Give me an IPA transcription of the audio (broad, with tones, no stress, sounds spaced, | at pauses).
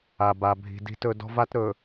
a˨ b a˨ bʱ i̤˨ d i̤˨ t ɵ˨ d ɔ̤˦ v a˦ t ɾ ɵ˨